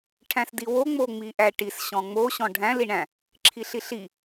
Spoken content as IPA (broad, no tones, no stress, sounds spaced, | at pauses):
ʈʰ æ̃ s d i w o ŋ͡m o ŋ͡m i ʔ æ ʈ i s ɕ ɔ̃ ŋ͡m o ɕ ɔ̃ ɖʱ æ̃ l i ɳ æ̃ | ǁʰ i ɬ i ɬ i